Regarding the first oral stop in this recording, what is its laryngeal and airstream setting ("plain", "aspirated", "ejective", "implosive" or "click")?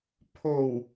aspirated